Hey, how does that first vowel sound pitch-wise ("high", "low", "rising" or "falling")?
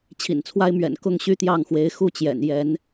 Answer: low